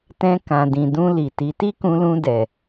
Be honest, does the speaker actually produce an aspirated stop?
no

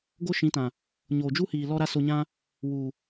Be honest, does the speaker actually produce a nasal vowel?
yes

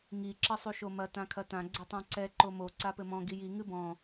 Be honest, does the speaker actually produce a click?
yes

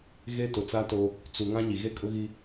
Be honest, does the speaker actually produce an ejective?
yes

